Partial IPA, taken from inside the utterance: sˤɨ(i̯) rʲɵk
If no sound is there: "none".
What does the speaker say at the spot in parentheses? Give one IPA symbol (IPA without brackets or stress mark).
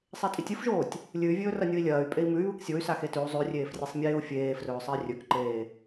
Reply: i̯